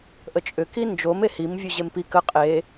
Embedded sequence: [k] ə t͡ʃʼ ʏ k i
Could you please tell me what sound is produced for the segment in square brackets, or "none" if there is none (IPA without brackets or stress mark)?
ʔ